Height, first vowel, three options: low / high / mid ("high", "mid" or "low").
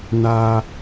low